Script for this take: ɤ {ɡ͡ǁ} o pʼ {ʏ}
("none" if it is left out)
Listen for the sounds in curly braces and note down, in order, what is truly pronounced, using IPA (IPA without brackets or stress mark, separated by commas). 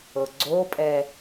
ɡ͡ǀ, ɛ